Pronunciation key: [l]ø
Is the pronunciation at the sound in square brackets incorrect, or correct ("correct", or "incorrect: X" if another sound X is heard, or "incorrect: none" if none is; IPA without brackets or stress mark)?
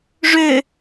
incorrect: ʐ